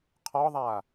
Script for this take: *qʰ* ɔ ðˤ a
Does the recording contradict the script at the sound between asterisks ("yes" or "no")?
no